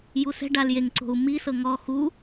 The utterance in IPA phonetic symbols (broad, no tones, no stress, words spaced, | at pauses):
jusɛ̤ ɖaljeŋ ǀo̤u̯mi sɤŋɔ xu